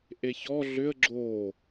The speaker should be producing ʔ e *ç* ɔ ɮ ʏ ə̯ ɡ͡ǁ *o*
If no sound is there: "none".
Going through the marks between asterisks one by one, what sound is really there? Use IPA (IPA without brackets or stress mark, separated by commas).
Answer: ç, o